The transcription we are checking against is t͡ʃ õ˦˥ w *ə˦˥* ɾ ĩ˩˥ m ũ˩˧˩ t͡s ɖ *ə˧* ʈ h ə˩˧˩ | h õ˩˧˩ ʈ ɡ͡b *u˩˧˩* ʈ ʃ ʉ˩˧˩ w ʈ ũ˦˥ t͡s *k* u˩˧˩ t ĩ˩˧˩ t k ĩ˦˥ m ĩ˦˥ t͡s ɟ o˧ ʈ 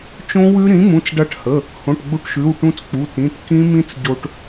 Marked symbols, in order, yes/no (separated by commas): no, no, no, no